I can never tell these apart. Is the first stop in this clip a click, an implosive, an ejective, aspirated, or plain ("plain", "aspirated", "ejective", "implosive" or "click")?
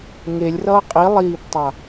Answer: ejective